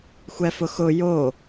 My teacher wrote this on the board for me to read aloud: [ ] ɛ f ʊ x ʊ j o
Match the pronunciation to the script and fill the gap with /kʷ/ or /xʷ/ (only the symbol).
xʷ